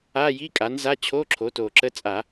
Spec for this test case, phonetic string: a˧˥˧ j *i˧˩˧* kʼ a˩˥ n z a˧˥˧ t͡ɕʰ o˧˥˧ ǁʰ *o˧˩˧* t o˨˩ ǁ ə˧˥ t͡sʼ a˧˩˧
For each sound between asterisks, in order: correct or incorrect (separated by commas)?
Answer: incorrect, incorrect